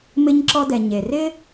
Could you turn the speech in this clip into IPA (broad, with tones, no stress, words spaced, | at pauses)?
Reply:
mɪ˧ɲǁɔ˧dɛ˩ ɲe˩rɪ˥